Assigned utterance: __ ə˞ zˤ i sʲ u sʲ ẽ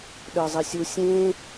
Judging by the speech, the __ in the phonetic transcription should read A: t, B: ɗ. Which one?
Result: B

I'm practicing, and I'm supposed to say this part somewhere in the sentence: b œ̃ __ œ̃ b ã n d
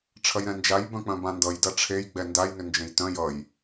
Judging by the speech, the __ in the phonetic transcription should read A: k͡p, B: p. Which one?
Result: A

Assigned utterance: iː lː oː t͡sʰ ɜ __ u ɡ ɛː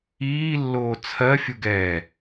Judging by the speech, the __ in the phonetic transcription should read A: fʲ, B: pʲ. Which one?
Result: A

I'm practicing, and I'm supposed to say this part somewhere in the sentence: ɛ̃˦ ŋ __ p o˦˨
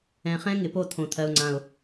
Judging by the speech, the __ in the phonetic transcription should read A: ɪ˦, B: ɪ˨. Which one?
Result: B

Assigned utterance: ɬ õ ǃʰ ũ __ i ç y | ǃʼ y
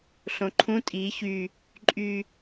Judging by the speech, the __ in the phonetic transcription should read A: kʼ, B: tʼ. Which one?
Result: B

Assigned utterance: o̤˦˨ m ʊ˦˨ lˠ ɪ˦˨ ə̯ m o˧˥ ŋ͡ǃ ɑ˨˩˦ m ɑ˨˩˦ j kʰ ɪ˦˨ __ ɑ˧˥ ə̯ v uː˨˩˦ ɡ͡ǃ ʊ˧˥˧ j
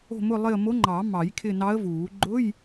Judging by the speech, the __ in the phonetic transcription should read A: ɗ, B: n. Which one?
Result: B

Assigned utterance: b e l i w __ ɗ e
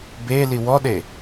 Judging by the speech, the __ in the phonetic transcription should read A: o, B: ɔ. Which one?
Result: B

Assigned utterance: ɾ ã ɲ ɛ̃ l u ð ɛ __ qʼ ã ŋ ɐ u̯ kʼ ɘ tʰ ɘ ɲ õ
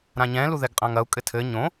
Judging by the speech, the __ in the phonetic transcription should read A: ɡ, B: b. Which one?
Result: A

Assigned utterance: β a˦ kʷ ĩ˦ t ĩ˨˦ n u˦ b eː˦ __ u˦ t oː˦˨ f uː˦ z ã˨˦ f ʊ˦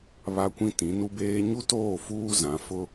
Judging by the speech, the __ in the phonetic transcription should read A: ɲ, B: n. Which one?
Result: A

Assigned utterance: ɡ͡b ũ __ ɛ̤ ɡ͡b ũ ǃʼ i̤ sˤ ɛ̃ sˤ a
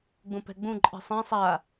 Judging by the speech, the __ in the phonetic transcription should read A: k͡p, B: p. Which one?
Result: B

